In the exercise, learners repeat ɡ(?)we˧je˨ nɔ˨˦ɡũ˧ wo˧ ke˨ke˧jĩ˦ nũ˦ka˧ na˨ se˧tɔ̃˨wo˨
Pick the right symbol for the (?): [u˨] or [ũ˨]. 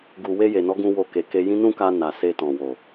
u˨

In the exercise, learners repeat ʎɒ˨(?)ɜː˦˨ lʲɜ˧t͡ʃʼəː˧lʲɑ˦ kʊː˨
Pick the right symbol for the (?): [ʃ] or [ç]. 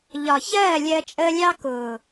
ç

